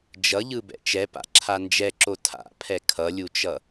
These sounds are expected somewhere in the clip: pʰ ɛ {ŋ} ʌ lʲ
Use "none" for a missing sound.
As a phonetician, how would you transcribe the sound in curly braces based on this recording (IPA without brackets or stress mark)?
kʰ